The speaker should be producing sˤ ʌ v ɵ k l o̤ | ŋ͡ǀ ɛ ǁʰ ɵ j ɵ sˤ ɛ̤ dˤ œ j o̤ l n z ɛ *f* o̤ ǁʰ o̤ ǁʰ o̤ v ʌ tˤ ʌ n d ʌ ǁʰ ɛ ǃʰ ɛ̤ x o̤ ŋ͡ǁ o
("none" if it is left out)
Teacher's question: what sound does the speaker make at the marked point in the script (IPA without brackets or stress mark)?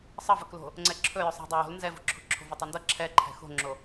v